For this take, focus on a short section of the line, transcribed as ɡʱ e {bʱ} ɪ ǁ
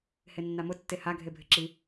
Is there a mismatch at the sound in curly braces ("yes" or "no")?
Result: no